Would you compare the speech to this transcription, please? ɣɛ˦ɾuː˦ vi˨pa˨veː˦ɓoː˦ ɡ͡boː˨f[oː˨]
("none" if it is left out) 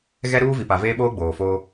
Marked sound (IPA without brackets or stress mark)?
oː˦